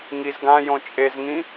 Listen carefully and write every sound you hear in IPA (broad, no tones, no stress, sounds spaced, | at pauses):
ŋ i z ɡ ã j õ t͡ʃʼ e z ŋ ĩ